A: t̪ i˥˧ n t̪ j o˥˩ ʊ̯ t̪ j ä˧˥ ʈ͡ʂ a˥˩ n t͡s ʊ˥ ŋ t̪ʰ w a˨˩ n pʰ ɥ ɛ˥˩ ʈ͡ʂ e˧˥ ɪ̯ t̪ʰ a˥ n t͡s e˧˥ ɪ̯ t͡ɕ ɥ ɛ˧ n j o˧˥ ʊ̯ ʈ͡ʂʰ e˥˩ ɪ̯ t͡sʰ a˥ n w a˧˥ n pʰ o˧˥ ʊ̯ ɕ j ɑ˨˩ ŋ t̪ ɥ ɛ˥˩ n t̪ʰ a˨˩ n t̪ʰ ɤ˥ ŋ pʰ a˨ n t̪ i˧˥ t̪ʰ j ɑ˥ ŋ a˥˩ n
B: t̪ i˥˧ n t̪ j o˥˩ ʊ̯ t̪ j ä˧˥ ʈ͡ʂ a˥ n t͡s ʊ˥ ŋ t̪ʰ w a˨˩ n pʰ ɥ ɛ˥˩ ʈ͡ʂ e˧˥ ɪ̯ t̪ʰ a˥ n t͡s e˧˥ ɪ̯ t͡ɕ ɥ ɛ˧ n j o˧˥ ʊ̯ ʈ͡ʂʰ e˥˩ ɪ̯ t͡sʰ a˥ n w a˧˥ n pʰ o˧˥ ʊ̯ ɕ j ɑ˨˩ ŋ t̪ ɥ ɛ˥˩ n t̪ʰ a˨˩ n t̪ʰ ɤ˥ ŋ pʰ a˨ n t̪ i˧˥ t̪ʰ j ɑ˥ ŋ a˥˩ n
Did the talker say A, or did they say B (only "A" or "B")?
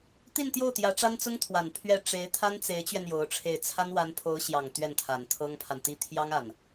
B